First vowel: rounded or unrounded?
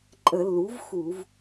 unrounded